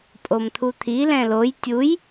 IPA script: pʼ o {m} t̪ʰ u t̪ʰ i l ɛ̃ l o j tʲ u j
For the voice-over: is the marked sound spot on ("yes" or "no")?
yes